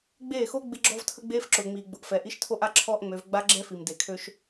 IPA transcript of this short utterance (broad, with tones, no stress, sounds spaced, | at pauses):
ɡ͡b eː˦˨ x o˦ ɡ͡b ɪ˦ ɡ͡ǁ ɔ˦ v tʰ ə˦ ɡ͡b eː˦ f ǁ ʊː˨ ŋ͡m iː˨ ɡ͡b ʊ˨ ʔ f ɛ˨ ʔ i˦ ʃ tʰ o˦ ʔ a˦ ǁʰ ɔː˦ ʔ ŋ͡m ø˨˦ v ɡ͡b a˦ ɡ͡ǁ ɛ˦ f i˨ m d e˨ kʰ ø˦ ʃ